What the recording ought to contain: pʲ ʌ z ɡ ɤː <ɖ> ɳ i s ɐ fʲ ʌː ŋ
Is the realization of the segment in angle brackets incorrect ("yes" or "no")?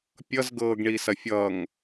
yes